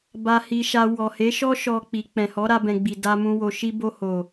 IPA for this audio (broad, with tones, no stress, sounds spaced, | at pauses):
b a˨ h i˨ ʃ a˨ w ɔ˨ h e˨˦ ʃ ɔ˦ ʃ ɔ˧ k͡p i˨ k͡p ɛ̃˨ h ɔ˨˦ ɾ a˧ b ɛ̃˨ ɡ͡b i˨ d a˧ m ũ˧ w o˨ ʃ i˧ b o˧ h o˨